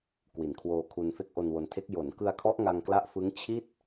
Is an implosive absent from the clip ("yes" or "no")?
yes